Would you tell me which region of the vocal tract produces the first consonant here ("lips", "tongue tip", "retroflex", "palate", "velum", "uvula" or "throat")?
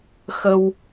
velum